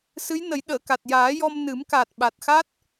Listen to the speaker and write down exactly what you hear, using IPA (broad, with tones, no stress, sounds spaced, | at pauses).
s ɨ˧˥ j n ə˨˩˦ j ɗ əː˨˩˨ k a˨˩ t̚ j aː˨˩˦ j ɔ˧ m n ɨ˨˩˦ m k a˨˩ t̚ ɓ a˨˩ t̚ x a˦˥ t̚